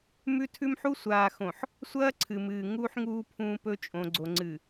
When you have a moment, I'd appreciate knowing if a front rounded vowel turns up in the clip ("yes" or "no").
no